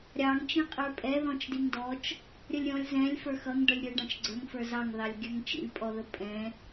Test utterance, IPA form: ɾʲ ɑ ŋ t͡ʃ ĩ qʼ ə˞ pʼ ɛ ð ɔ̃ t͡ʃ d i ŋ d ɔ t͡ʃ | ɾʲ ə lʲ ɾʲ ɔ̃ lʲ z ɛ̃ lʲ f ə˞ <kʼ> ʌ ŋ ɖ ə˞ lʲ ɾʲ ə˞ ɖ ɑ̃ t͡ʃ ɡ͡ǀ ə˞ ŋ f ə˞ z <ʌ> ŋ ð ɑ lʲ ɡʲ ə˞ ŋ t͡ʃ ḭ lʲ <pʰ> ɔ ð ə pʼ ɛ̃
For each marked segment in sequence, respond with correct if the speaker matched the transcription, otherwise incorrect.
incorrect: x, incorrect: ɑ, incorrect: pʼ

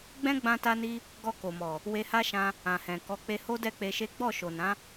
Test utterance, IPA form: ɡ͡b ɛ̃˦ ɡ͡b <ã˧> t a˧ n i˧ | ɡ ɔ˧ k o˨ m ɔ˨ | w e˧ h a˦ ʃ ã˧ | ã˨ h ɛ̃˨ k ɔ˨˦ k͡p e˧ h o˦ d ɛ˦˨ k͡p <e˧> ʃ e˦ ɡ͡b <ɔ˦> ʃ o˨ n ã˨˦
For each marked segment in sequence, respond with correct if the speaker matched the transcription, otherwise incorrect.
correct, correct, incorrect: ɔ˦˨

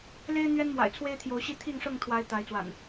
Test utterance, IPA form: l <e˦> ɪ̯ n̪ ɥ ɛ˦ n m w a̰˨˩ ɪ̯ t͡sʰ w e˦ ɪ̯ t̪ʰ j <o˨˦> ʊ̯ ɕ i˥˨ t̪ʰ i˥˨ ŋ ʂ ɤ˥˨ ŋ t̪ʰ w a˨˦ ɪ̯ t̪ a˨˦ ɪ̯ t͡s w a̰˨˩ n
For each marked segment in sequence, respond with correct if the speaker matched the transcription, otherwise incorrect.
correct, correct

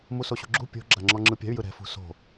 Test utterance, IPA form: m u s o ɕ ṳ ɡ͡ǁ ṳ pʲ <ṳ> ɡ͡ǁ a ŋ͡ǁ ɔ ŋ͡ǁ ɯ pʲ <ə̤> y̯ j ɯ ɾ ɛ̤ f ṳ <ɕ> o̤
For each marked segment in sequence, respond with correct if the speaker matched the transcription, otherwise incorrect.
incorrect: o̤, incorrect: a̤, incorrect: s

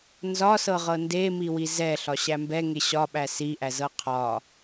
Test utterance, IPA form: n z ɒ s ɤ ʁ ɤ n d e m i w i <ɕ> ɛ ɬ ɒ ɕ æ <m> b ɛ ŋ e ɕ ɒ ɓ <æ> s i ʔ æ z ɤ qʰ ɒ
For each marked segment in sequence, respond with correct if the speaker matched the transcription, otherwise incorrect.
incorrect: z, correct, correct

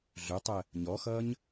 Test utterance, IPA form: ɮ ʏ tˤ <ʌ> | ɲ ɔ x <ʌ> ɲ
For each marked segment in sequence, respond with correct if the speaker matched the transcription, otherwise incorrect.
incorrect: ə, correct

